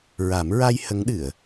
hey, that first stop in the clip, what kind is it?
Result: implosive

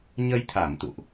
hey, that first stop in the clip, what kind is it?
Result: aspirated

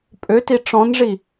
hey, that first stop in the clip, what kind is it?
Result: ejective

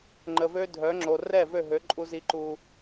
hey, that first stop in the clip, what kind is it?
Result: click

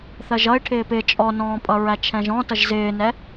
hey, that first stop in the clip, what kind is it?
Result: aspirated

